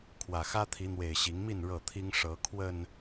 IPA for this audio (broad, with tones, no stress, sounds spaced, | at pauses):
kʰ w ä˨˩ x ä˦ t̪ʰ i˨˦ n̪ w e˨˩ ɪ̯ ɕ i˨˦ ŋ m i˥˨ n ɻ ɤ˥˨ t̪ʰ i˦ ŋ ʂ ɤ˨˦ kʰ w ə˨˩ n